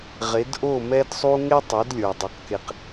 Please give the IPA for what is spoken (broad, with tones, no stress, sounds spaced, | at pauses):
ʁ e˩˥ d ʔ o˥˩ m ɛ˧ d sˤ u˧ ŋ e˥ tˤ o˩˥ d lʲ ə˞˩ dˤ e˩ q k e˩ q